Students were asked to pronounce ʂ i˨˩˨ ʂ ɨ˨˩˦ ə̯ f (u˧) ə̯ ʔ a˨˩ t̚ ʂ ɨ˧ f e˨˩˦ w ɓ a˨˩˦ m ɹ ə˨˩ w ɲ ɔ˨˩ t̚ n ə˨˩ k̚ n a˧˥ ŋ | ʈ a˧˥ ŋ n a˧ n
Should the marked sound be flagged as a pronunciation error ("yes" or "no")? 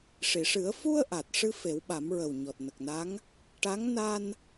no